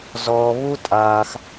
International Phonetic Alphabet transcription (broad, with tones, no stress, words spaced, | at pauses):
zɔː˧βu˦ tʼaː˧x